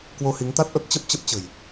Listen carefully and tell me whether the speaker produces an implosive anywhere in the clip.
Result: no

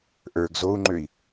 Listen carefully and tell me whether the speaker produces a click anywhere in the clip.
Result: yes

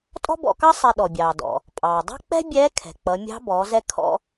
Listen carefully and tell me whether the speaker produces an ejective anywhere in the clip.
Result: yes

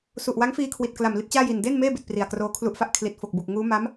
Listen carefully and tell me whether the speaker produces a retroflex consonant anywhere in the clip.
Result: no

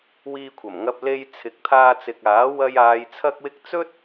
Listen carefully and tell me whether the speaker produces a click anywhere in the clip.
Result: no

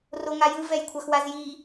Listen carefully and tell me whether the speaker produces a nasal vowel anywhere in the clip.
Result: no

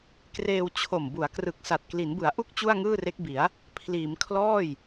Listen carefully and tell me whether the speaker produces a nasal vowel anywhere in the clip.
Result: no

